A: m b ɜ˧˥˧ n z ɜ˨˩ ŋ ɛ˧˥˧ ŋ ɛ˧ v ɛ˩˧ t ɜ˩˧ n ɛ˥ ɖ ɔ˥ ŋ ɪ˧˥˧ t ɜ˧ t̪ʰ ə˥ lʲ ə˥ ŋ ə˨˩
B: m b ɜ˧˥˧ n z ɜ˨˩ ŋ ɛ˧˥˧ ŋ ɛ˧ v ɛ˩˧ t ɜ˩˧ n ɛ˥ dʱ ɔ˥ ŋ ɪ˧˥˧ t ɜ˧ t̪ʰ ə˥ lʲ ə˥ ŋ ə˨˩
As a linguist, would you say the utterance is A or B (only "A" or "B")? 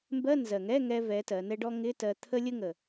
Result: A